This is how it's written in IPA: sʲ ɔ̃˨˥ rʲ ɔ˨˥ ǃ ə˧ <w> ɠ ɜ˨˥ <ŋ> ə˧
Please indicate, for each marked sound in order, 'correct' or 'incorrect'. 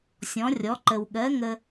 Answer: correct, correct

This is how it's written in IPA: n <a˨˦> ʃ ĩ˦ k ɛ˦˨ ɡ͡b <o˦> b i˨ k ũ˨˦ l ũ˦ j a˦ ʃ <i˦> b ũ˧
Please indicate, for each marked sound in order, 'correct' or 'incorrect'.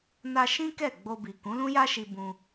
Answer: incorrect, incorrect, incorrect

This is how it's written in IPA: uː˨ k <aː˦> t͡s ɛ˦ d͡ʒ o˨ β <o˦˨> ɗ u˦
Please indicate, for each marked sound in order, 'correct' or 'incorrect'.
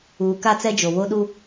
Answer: incorrect, incorrect

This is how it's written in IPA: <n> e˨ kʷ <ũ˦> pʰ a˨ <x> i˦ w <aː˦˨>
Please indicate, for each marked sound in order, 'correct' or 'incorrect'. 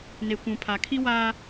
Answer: correct, incorrect, incorrect, incorrect

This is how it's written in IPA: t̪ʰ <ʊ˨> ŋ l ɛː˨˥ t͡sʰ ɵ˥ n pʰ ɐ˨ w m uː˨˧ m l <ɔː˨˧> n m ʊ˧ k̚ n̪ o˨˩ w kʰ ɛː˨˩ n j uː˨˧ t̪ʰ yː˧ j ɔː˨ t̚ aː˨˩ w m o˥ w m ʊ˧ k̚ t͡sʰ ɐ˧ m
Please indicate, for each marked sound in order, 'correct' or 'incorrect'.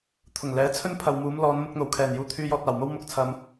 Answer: incorrect, correct

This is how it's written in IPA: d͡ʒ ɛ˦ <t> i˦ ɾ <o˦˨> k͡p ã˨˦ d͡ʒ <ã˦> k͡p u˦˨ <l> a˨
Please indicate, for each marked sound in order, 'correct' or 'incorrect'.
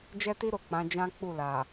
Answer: correct, correct, correct, correct

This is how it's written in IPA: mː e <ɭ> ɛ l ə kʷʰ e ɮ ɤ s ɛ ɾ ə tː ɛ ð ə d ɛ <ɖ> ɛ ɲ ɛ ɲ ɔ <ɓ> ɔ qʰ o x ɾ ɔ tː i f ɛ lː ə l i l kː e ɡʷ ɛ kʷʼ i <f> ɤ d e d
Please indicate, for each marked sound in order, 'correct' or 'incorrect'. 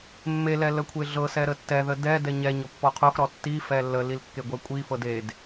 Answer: incorrect, incorrect, incorrect, correct

